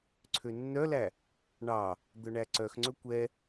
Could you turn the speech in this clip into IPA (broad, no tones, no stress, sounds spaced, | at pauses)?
ǀʰ ø nː œ l æ | ɳ ɑ | d̪ œ ɳ æ ǀ œ x ŋ͡ǀ ɵ kʷ ɛ